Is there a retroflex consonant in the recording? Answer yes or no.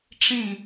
yes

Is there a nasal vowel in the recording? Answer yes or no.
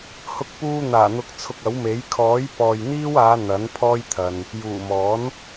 no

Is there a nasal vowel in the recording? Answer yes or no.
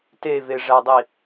no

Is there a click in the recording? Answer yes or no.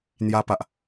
no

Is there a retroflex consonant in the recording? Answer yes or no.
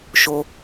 no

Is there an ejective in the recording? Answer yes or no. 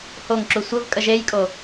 yes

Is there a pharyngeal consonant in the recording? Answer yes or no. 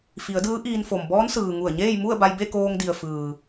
no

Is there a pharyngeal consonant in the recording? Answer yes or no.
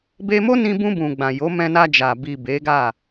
no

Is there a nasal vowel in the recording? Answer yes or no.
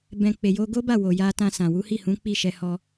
yes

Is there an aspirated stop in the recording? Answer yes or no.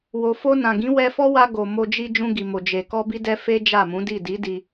no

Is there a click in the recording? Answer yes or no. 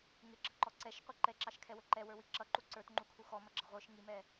yes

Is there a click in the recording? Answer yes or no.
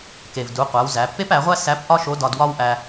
no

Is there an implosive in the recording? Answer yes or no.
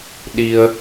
yes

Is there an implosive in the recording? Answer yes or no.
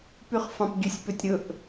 no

